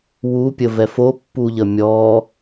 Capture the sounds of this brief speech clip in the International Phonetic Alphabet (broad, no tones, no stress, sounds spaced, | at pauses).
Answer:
w u pʲ ə v ɛ f o pː u ʎ ə mʲ ɔ